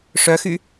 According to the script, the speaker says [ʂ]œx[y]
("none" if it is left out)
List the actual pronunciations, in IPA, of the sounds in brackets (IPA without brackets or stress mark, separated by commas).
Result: ʂ, y